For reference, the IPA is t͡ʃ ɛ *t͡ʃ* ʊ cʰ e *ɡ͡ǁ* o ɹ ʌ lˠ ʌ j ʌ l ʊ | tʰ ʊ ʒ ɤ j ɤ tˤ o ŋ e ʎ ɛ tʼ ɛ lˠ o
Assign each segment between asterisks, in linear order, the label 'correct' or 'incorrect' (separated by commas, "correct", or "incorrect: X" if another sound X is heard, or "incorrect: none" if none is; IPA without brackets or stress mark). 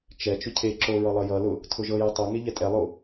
correct, incorrect: ǁ